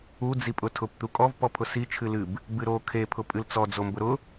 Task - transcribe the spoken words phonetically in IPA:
u d͡zipʼʊtʰʊp t̪ukʼɔv pɔpʰʊsi t͡ʃʰɨlɨb | bɨɾo kʰe pʰʊpʼɨlt͡sɔ d͡zombʊɾʊ

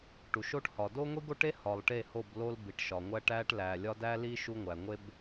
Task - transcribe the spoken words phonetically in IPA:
ʈu˨ʃo˦ʈhɒ˨ do˦ŋʷi˦ɡo˦ʈe˦ hɒ˨lˠʈe˦˨ho˦˨b lo˦lbi˨ʈʃɒ˨ ŋʷæ˦ʈæ˦ʈlæ˨lʲɒ˦ dæ˦li˦ ʃu˦ŋʷæ˨ ŋʷe˦b

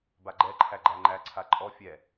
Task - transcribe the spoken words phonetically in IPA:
baɡ͡ǃɛǃʰæ ɡ͡ǃæŋ͡ǃæǀʰa ǃʼɔ fʲɛ

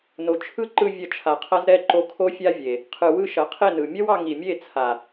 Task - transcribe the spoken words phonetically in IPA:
no˨t͡ʃʰɯ˦ǃɯ˧ vʲɐ˧t͡ʃʰa˨qʰɐ˦z ɾɛ˦˨ǃo˧kʰo˦fʲa˦ vʲe˨ | qʰɯ˨wɯ˧ ʃɐ˨˦qʰe˦˨nɯ˨ mʲɐ˦wɑ˧ ŋi˨mʲe˦˨t͡sʰa˨

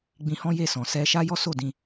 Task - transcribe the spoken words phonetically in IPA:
ɡ͡bĩ˧hɔ̃˦je˦˨sɔ̃˨ sɛ˧ʃa˦ jɔ˦so˦˨dĩ˧

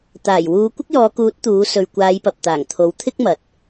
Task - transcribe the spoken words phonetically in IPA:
t̪aː˨˩jwuː˨˧ kʷɪ˥k̚jɔː˨˧kuː˨˥t̚ t̪uː˨˥ sɵ˨ɥkʷaː˨˧jpɐ˨p̚t̪aː˨˩ŋ t̪ʰo˨˥w t̪ʰɪ˥k̚mɐ˨t̚

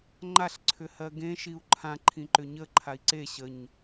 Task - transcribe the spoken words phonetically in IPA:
ŋ͡ǃaɬ ǀʰʏhɜɡẽ ʃiu̯ǃʰã ǃʰĩǃʏɲə ǃʰai̯ǀe ɕəɲ

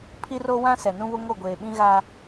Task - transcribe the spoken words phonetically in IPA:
pʰi˦ro˦wã˦ sɛ˨ nũ˦βʊ˦ ŋo˦˨ɡʷeː˨ ɓĩ˦ɣaː˦

